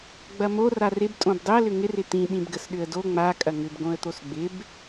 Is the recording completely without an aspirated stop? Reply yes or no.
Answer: yes